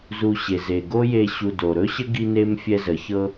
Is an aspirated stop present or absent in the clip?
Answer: absent